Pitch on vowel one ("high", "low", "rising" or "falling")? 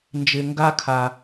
low